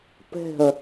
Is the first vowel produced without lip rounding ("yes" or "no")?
yes